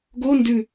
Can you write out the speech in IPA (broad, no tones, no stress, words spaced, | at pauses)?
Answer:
ɡo ndʉ